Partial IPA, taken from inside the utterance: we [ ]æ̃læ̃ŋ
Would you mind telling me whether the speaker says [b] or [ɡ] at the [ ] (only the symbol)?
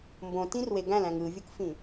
ɡ